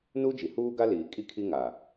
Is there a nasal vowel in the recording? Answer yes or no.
no